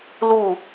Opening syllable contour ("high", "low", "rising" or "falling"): falling